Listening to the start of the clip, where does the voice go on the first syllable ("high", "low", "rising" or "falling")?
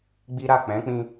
high